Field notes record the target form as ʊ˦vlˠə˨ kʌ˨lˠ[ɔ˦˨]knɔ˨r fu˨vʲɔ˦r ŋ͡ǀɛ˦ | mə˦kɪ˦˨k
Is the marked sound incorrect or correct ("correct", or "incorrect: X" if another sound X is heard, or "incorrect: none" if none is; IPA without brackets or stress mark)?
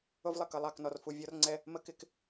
incorrect: ɑ˦˨